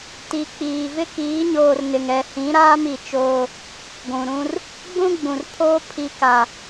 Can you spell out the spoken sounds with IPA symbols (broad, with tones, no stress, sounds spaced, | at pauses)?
t i˨ k͡p iː˨ v ɪ˦ k iː˨˦ ɲ oː˨ r n ɪ˨ ŋ ɛ˨ h ĩ˨˦ ɾ aː˦ m i˨ t͡ʃ oː˦ | ɡʷ ũ˨ ɾ ũ˦ r | ɡ͡b ũ˦ ɡ͡b ũ˨ r pʰ oː˦ pʰ i˦ k a˦